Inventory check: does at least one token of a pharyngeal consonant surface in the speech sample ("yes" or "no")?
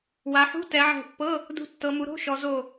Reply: yes